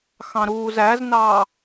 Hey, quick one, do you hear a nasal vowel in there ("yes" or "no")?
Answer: yes